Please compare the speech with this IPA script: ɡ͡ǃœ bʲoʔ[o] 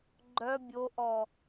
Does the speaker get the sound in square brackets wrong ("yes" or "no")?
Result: yes